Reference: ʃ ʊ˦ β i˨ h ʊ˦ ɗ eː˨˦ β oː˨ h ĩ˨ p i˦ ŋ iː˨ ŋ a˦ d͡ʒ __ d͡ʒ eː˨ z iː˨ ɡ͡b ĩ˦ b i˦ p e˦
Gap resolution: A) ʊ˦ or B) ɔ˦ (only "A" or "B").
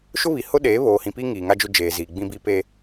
A